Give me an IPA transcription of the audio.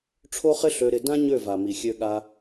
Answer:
ʈ͡ʂʰ o˦ χ ɪ˦ ɬ ø˧ ɾ ɪ˧ d ã˦ ɲ ø˦˨ v a˨ m i˨ xʲ ø˧ ɠ a˧

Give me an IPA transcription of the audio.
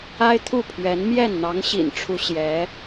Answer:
a˥ ɪ̯ t̪ʰ u˥˩ pʰ ɥ ɛ˧˥ n m j ɛ˥˩ n n̪ ɑ˧˥ ŋ ɕ ḭ˨˩ n ʈ͡ʂʰ u˧˥ ɕ j ɛ˧˥

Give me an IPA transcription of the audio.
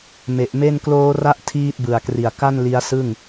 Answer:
m e˨˩ ʔ m e˥˩ n k l oː˦˥ r a˦˥ ʔ tʰ iː˥˩ t̚ b ɯ˨˩ a̯ k r i˨˩ a̯ k a˥˩ n l i˦˥ a̯ s ɯ˥˩ ŋ

